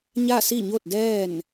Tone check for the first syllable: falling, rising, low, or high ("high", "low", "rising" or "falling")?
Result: falling